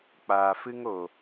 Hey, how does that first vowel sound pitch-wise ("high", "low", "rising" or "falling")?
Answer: low